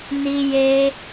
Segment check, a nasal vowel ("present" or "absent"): absent